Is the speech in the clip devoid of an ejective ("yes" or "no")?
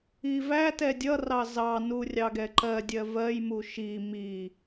yes